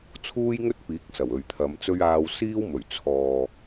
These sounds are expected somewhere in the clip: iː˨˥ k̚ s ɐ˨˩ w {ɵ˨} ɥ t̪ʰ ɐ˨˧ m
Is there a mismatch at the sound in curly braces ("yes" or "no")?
no